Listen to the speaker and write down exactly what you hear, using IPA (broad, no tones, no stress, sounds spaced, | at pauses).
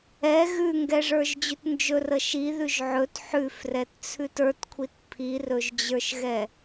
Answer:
ɛ ɣ ʉ ŋ ɡ ɛ ʐ ə˞ ʒ d͡ʑ ʉ t n d͡ʒ ɵ r ə ʃ i ð ʉ ʒ ʕ ɵ t ħ ʉ f r ɛ t t͡sʰ ʉ t ə˞ t kʷʰ i t pʰ i r ɵ ʒ d͡ʑ ə˞ ʃ ɣ ɛ